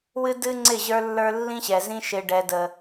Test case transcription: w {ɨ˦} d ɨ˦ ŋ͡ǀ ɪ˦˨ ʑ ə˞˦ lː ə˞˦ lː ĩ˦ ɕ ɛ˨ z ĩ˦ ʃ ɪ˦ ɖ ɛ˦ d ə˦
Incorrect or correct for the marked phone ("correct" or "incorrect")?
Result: correct